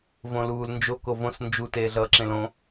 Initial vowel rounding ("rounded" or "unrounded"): rounded